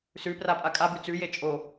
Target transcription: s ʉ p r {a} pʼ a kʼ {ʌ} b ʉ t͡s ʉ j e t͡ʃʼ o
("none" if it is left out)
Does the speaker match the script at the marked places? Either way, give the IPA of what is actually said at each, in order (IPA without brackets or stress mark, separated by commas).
a, a